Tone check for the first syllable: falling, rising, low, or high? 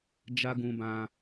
high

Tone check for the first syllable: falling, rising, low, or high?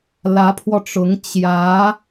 rising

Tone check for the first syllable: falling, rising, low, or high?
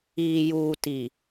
low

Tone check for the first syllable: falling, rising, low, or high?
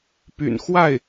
low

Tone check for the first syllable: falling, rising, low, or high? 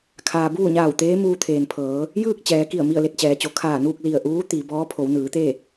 low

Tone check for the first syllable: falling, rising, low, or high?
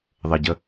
low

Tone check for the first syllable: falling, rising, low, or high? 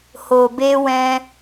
low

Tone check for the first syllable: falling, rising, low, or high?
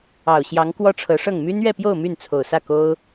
low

